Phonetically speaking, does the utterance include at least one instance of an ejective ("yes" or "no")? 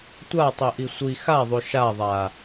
no